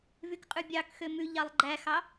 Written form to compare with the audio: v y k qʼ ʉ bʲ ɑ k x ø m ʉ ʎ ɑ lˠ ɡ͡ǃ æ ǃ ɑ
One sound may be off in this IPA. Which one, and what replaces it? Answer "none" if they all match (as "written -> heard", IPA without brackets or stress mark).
ǃ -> x